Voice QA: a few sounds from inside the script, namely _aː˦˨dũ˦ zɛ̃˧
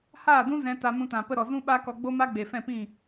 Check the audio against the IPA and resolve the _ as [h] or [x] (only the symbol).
h